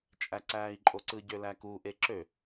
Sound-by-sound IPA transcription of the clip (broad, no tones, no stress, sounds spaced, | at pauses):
t͡ʃʼ æ ǀ æː i̯ ǃʼ o ǀ ɯ ɟ ø l æ k u ʔ e ǁ ø